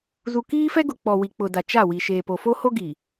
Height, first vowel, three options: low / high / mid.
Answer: high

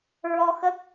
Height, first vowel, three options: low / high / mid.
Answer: mid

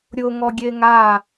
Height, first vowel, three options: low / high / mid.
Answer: high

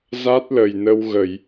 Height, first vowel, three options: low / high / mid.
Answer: low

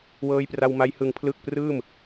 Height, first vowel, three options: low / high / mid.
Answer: mid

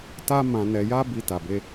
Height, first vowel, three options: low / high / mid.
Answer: low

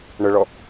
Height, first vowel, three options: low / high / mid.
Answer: mid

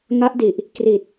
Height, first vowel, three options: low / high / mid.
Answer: low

